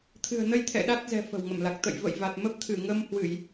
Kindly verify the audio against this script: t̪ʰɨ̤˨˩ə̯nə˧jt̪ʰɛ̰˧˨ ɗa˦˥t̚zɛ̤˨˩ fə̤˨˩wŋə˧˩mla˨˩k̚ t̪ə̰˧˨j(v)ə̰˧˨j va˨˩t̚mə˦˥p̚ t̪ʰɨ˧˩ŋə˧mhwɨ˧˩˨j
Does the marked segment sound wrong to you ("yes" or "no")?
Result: no